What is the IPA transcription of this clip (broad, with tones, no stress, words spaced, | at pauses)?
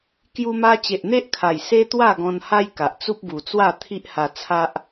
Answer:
kju˧ma˧ t͡ɕe˨ʔn̪e˦ʔkʰa˨˩j se˦t̪wa˥˧ɡɔ̃˧nha˦j ka˨ʔ t͡su˦p̚ɡu˨˩t͡swa˥˧ t̪ʰi˦ʔha˧ t͡sʰa˦ʔ